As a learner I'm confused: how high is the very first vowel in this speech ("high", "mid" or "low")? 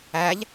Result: low